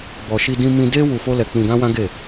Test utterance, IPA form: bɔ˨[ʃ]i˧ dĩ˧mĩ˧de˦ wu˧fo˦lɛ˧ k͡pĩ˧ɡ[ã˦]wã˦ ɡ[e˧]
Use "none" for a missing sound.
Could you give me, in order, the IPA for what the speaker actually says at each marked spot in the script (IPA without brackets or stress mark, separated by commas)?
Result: ʃ, ã˦, e˦˨